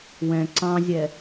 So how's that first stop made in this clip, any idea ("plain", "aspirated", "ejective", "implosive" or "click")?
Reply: click